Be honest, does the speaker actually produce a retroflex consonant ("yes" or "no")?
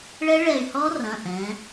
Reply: yes